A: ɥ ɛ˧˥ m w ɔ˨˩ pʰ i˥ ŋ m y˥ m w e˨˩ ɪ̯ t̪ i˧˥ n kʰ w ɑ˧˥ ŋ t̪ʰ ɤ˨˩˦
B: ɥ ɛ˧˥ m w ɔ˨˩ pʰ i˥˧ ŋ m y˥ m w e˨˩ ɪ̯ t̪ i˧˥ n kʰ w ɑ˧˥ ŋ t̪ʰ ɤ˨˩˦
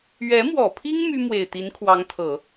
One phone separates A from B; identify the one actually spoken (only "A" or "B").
A